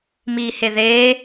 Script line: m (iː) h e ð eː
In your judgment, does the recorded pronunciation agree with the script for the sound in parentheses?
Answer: yes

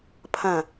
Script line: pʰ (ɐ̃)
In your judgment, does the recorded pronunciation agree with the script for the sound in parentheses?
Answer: yes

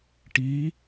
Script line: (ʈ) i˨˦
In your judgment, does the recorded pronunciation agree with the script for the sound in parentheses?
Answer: yes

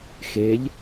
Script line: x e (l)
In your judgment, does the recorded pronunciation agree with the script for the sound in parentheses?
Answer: no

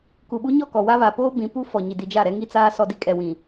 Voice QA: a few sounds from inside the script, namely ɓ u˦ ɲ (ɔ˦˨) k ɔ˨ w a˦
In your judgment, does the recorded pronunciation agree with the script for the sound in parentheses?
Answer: yes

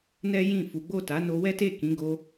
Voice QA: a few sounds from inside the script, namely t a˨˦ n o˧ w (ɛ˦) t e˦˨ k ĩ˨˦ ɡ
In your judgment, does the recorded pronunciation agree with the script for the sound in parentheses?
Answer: yes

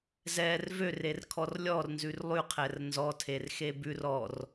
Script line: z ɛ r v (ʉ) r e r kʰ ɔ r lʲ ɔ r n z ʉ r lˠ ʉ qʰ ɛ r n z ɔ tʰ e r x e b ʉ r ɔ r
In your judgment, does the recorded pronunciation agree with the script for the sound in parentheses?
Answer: no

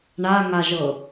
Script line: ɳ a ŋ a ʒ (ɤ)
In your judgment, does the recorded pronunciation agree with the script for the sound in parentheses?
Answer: yes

